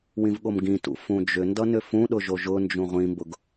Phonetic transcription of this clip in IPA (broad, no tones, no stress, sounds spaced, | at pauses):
w ĩ v ɠ o m ɡ ĩ t ṵ f ũ d͡ʒ ʏ n d ʌ n ʏ f ũ ɗ ʊ ʒ o ʒ ʊ n d͡ʒ ũ ʁʷ ĩ m b ʊ ɡ